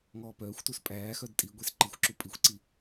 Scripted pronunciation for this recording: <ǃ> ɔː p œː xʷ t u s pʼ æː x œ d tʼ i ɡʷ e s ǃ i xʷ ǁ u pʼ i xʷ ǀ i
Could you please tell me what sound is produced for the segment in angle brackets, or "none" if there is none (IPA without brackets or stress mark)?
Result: ŋ